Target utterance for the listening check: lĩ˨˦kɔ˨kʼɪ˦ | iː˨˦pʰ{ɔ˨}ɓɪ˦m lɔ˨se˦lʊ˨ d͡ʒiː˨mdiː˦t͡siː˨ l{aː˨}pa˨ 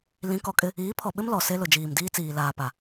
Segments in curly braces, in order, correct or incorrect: correct, correct

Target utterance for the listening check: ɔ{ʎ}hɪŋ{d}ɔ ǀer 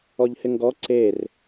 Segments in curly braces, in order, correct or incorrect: correct, incorrect: ɡ

